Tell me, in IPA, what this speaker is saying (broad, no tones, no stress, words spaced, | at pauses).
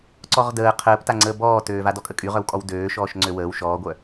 ǀɔʁdəː qʰəːpta ŋ͡ǀəːbɔːtøːva dɔkʼəkʼyʁœw kʼɔwdøːʃɔːʃ ŋ͡ǀøwəːw ʃɔːɡʷœ